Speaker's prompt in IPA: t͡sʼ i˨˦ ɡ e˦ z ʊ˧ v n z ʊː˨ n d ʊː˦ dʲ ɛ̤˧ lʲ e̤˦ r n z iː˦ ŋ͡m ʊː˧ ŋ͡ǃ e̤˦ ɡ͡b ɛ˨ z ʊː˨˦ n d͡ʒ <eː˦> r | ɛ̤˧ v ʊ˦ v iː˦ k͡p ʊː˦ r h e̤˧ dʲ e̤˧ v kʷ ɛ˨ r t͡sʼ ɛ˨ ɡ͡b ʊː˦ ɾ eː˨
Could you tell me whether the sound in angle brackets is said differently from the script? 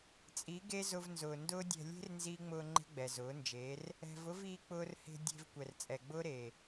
yes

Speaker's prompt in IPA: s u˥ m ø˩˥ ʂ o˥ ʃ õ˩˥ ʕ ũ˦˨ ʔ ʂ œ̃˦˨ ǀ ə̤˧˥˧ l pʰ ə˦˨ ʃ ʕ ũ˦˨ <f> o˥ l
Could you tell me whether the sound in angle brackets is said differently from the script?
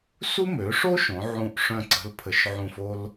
no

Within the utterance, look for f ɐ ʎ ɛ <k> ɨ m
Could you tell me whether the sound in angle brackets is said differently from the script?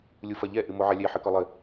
yes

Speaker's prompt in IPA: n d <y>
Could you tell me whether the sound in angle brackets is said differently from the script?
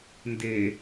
yes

